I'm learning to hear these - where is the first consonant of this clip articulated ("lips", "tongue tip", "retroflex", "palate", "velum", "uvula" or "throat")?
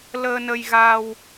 tongue tip